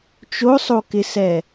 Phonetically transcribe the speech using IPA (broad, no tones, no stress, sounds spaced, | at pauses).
t͡ʃ o sˤ o k ɪ s ɛ